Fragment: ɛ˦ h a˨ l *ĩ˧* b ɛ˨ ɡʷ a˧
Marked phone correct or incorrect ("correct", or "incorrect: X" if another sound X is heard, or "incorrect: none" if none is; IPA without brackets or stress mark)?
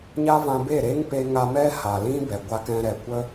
incorrect: ĩ˦